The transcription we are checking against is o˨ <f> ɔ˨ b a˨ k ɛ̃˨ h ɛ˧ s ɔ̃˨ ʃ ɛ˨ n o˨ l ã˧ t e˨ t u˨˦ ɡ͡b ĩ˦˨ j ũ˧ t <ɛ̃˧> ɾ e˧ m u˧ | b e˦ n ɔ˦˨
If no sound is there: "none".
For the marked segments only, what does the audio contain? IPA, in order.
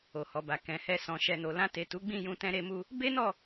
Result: h, ɛ̃˧

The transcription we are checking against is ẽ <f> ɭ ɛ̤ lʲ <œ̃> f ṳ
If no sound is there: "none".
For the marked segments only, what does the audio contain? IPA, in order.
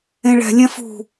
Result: none, ɛ̃

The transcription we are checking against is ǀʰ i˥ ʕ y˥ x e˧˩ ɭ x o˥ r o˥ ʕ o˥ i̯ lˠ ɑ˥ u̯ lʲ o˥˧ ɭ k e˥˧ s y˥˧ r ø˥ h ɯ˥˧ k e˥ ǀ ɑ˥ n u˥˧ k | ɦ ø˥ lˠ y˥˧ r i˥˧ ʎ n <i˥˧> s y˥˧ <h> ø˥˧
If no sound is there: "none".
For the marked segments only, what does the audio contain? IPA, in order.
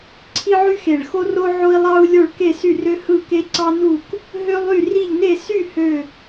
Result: e˥˧, h

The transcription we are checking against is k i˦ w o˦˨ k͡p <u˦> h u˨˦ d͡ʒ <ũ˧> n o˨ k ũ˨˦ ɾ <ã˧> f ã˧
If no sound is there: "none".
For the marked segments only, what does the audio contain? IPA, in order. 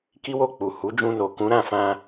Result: u˨, ũ˧, ã˦˨

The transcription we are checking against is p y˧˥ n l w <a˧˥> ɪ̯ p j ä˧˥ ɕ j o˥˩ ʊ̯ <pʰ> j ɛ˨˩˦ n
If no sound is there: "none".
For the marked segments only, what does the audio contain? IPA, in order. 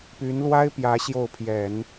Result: a˥, pʰ

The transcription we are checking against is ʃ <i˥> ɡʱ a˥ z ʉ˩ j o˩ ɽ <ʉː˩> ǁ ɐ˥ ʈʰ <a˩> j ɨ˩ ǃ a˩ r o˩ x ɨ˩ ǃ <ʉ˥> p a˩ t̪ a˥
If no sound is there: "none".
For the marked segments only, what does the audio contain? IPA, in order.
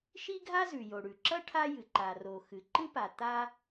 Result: i˥, ʉ˩, a˥, ɨ˥

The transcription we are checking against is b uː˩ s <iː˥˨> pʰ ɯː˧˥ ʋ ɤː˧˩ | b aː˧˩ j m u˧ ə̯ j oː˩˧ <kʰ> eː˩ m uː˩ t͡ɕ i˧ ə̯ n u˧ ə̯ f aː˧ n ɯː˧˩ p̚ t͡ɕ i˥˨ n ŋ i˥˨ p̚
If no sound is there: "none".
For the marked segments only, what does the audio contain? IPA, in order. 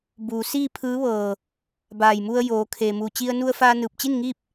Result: iː˥˨, kʰ

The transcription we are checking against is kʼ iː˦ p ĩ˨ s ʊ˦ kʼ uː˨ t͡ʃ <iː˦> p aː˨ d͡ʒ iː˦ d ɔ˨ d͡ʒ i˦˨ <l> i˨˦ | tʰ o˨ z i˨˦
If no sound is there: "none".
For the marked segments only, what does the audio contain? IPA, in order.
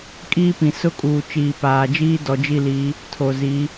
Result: iː˨, l

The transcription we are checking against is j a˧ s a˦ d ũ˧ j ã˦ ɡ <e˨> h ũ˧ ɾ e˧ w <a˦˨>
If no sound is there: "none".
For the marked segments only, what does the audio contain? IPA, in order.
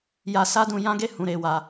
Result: e˦, a˧

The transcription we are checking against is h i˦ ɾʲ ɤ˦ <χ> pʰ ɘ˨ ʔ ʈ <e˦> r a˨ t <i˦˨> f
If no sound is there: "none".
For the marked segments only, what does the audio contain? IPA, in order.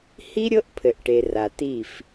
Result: ʔ, e˨, i˦˨

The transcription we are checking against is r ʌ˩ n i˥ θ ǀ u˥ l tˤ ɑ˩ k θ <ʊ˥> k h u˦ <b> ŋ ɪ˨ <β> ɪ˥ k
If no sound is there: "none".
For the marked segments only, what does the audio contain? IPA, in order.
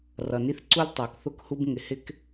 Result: ʊ˥, b, h

